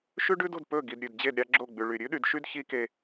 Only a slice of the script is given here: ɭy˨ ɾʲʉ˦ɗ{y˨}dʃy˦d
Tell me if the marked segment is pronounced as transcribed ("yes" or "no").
yes